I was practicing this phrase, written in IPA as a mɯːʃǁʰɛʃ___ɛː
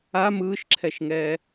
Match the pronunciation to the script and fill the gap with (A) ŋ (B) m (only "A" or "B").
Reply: A